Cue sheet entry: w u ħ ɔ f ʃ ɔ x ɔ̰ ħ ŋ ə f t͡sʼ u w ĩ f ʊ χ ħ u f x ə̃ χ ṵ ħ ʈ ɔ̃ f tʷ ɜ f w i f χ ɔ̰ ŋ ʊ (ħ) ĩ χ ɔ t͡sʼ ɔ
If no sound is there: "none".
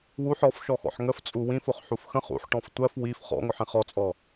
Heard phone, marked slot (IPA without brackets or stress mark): ħ